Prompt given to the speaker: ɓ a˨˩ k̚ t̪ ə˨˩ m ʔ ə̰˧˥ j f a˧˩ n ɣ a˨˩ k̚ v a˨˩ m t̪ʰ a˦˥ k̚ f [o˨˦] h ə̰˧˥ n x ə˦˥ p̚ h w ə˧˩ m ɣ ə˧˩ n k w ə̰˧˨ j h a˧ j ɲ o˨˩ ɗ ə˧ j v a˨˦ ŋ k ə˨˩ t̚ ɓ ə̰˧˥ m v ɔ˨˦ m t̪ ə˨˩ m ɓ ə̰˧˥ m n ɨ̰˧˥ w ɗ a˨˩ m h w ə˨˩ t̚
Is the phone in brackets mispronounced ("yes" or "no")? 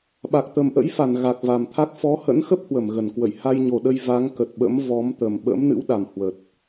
yes